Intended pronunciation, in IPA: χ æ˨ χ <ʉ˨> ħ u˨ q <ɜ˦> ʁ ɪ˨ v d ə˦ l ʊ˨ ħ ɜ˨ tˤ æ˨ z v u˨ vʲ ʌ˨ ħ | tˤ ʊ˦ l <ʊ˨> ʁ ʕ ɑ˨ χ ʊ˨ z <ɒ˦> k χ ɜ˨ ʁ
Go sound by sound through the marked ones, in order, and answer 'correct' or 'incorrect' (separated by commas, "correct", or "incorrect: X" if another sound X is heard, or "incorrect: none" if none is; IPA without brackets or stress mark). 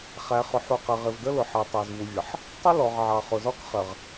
incorrect: ʊ˨, incorrect: ɜ˨, incorrect: ɔ˨, correct